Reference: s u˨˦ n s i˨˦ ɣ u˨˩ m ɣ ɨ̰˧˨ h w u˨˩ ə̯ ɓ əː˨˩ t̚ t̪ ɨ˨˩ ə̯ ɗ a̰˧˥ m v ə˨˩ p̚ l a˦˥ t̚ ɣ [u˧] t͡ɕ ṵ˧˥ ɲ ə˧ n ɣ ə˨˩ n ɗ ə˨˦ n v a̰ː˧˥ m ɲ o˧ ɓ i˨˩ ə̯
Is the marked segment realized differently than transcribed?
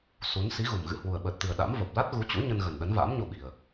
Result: yes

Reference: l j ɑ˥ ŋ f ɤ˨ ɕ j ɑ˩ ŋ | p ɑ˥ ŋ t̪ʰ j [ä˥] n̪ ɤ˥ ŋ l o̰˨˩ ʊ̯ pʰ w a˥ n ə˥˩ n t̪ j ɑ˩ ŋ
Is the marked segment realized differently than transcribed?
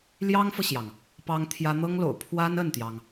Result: no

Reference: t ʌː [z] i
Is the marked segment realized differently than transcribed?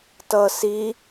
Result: yes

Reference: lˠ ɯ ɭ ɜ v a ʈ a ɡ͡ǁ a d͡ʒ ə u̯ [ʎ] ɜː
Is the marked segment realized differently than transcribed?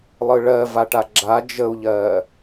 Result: no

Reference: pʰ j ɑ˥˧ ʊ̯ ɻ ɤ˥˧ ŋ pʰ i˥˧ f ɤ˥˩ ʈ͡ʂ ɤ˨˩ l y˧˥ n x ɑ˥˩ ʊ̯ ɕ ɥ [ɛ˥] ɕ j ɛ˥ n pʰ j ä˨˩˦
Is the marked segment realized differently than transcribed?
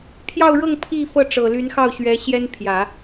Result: yes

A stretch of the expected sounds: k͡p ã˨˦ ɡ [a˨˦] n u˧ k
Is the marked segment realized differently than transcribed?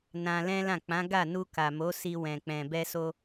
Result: yes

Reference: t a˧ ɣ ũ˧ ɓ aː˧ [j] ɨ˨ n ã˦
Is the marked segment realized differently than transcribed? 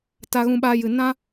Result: no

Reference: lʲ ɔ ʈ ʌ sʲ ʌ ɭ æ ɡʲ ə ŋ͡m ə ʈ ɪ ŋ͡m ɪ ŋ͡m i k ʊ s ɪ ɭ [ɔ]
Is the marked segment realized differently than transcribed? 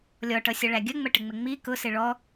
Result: no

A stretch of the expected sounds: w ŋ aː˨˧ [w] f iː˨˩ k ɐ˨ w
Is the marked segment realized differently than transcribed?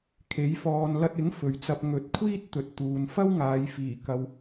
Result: yes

